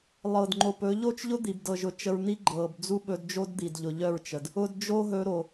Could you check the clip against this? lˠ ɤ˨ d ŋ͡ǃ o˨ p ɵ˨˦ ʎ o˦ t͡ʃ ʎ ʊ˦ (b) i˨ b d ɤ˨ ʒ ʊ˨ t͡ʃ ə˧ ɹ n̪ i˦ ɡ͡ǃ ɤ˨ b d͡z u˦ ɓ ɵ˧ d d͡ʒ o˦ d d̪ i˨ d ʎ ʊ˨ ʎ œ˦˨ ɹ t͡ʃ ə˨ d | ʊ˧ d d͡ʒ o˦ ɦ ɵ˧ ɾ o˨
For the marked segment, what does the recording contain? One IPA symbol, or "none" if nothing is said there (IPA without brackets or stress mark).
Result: d̪